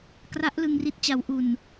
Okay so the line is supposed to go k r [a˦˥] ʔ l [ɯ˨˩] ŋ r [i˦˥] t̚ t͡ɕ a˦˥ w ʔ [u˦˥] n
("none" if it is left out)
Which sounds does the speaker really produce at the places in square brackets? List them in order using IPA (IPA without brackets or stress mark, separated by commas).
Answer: a˦˥, ɯ˧, i˦˥, u˧